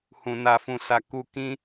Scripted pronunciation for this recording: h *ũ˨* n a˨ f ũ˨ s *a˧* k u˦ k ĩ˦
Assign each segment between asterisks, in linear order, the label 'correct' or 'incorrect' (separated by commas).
correct, correct